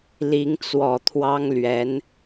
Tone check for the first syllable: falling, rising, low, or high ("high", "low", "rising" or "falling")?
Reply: rising